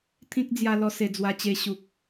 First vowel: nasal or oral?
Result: nasal